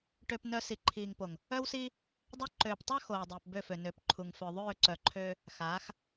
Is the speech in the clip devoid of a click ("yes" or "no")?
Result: no